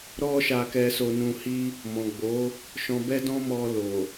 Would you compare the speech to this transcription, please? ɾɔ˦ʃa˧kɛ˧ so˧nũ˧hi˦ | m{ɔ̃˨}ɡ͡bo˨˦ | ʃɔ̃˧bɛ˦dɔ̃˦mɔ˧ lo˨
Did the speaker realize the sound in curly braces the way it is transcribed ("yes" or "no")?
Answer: yes